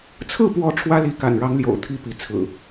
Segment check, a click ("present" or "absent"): absent